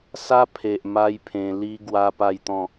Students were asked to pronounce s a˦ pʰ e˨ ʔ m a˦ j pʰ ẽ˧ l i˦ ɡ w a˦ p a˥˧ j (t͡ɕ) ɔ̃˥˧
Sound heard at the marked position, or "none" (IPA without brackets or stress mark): t̪